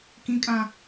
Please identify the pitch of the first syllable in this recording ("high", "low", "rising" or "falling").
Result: high